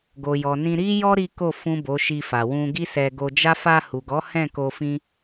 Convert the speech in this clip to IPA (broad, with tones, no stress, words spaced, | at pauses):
ɡo˨jɔ˨nĩ˧ ɾi˦jɔ˦ ɾi˦ko˦˨ fũ˨ bo˨˦ʃi˧fa˨ wũ˧ɡi˦sɛ˧ ɡo˧d͡ʒa˦ fa˧hu˨ɡɔ˨˦ hɛ̃˦˨ko˧ fĩ˦